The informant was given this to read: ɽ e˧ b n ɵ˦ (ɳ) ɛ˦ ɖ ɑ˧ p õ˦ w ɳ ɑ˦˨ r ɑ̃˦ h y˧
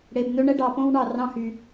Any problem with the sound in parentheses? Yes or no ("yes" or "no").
no